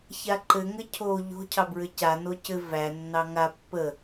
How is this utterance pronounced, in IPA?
ç a ǃ ɘ ŋ ɘ cʰ o ʎ o̤ cʰ ɑ b ɹ ɘ c a n o c ɘ v æ nː ɑ ŋ a pː ə

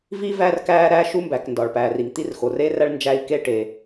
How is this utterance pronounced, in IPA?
v i˥ v æ˥ r k æː˥ ɾ æː˥ ʃ u˥ m b æ˩ k n d ɒ˩ ɭ p æː˩ r i˩ ŋ t̪ i˥ r x o˩ r eː˥ r æ˥ ɭ n d͡ʒ æ˥ i̯ k eː˥ ʈ e˩

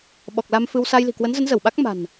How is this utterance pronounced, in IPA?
ɓ ɔ˨˩ k̚ l a˧ m f ɨ˧ w s a˧ j l i̤˨˩ k w ə˨˦ n z ə˨˦ n z ə˧˩ w ɓ a˦˥ k̚ m a̤˨˩ n

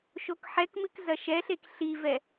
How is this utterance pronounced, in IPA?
ʃ o k ħ ɛ k m ɨ k z ɐ ʃ ɛ ɬ e k ɬ i v ɛ

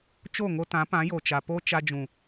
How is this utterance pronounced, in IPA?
t͡ʃ o˦˨ ŋ o˧ t ã˨˦ p ã˨˦ j o˨ t͡ʃ a˨ p o˦ t͡ʃ a˧ d͡ʒ ũ˨

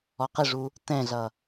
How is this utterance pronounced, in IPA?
ɔ q ɪ ʐ u | t ɛ̃ ɮ ʌ

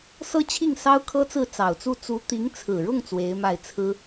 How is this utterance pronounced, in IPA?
s ɤ˥˧ t͡ɕʰ i˥˩ ŋ s ɑ˥ ʊ̯ kʰ ɤ˥ t͡s ɹ̩˥˩ t͡s ɑ˨˩ ʊ̯ t͡s u˥˩ t͡s u˧˥ t̪ i˧˥ ŋ t͡sʰ ɹ̩˨˩ ɻ ʊ˥˩ ŋ t͡s w e˧˥ ɪ̯ m a˥˩ ɪ̯ t͡sʰ ɹ̩˥

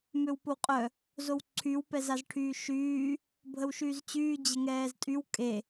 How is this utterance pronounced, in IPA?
m ø w p o w qʼ œ | z o w ǀʰ y w p ɛ z a z ʈʰ yː ʃ yː | bʱ ə w ʃ yː z t͡ɕ yː d͡ʑ ə ŋ ɛː z tʼ y w kʼ e

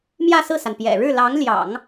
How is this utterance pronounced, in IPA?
m j ä˥˧ s ɹ̩˥˩ s a˩ n p j ɛ̰˨˩ ɻ ɻ̩˥˩ l ɑ˧˥ ŋ l j ɑ̰˨˩˦ ŋ

